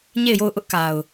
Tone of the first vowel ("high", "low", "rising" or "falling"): falling